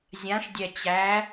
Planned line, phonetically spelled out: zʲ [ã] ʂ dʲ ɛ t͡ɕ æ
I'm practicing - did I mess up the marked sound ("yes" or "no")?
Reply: no